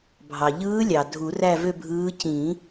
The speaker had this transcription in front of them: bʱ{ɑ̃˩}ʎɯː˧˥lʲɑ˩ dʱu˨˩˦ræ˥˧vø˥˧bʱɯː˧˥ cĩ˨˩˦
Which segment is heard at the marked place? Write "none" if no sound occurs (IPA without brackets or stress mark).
ɑ˩